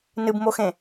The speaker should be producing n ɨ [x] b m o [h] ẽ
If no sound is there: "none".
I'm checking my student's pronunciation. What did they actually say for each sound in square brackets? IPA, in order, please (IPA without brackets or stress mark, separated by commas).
none, x